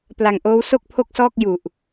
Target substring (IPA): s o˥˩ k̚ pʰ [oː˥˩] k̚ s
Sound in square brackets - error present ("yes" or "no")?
yes